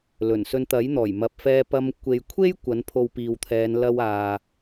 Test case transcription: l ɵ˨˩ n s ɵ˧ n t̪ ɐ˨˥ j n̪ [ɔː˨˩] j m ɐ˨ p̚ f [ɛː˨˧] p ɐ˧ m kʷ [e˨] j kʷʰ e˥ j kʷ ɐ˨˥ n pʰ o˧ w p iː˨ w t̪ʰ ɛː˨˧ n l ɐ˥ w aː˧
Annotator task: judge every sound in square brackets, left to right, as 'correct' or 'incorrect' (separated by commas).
correct, incorrect, correct